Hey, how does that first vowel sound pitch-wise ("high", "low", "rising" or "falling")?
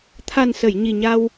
low